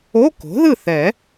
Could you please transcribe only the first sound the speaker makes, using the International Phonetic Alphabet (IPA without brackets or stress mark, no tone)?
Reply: o